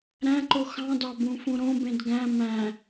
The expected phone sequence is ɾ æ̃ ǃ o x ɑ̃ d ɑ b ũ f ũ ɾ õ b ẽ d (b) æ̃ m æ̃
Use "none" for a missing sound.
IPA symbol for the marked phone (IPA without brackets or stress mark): ɡ